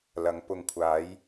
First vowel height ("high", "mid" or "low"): low